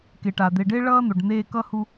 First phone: k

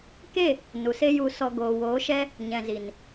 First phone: k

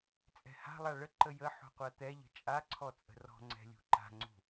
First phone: t͡sʼ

